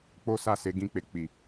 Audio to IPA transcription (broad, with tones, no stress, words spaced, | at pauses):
k͡po˦sa˦˨se˨˦ ɡĩ˦˨k͡pe˧ k͡pi˨